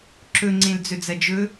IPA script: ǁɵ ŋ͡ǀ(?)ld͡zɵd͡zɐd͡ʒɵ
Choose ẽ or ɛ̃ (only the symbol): ẽ